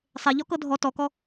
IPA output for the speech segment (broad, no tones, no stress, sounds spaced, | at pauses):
sˤ e ʎ ɔ k ɤ dʱ ɔ t ɔ k ɔ